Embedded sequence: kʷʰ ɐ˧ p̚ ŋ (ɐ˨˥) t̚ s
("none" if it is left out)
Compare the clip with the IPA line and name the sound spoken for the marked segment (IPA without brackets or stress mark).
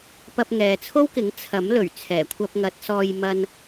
ɐ˨˥